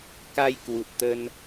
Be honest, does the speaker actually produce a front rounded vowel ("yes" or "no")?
no